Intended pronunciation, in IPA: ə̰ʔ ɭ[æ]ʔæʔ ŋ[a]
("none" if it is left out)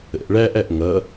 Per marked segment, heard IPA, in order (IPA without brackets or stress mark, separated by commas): æ, ʌ